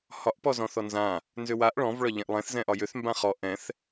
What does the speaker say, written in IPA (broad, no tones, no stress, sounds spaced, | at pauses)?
h ɒ ʔ p ɔ z ɔ̃ θ ɔ n z ã | n z ʏ w a ʔ ɭ ɔ̃ v ɭ ɒ ʎ ɛ̃ ʔ lˠ ɛ̃ θ z ɛ̃ ʔ ɒ j ʏ θ m b ã χ ɔ ʔ ɛ̃ θ